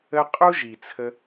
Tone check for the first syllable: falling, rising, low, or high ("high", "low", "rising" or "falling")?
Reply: high